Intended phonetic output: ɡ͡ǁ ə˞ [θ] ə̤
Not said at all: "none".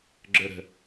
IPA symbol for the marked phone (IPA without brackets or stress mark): ɾ